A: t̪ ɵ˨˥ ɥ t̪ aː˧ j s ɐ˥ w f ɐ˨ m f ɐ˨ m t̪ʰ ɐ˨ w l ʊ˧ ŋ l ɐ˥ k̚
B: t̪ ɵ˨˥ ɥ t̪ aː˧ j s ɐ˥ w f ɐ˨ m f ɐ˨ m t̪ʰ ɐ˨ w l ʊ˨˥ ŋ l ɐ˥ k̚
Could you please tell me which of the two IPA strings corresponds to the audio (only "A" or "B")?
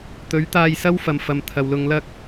A